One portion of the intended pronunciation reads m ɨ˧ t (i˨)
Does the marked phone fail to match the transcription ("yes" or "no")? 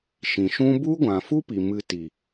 no